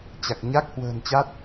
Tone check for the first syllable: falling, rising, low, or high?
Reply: low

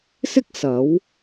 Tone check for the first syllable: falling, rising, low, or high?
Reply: high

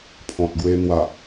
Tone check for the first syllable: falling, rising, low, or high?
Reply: low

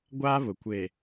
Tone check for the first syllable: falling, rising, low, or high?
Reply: high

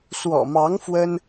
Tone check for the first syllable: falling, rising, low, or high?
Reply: low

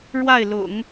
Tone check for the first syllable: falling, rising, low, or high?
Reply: falling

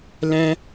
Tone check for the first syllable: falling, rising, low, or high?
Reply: high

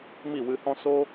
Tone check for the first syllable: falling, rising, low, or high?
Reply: falling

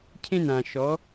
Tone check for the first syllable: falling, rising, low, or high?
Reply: high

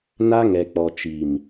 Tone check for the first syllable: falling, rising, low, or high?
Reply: high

